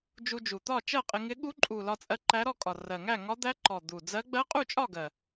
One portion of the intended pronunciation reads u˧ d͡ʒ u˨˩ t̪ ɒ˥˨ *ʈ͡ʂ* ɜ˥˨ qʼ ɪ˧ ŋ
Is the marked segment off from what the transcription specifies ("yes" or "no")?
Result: yes